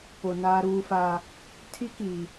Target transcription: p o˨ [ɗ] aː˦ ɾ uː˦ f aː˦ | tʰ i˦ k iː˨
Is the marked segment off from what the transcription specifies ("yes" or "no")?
yes